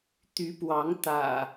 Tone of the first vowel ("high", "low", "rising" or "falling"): rising